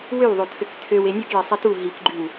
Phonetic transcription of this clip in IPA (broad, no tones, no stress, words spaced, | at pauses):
wøwðˤotʰøk tʰøwe nʲokjɛsˤɛ tu ɦikɡ͡ǃyw